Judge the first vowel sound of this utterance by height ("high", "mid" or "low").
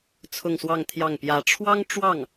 high